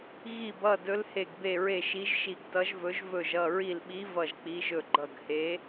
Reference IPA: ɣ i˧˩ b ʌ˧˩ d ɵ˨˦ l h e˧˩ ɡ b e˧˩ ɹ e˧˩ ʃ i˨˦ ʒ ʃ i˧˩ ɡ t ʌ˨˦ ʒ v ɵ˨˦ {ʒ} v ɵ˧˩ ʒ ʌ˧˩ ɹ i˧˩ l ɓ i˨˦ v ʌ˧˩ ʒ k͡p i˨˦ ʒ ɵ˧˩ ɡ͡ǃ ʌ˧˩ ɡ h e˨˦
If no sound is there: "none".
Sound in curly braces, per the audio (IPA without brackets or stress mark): ʒ